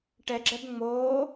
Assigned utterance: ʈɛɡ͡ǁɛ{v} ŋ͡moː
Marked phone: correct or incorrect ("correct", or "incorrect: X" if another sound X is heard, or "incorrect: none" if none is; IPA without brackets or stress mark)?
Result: incorrect: b